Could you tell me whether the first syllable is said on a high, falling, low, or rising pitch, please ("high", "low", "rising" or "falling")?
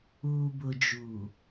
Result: low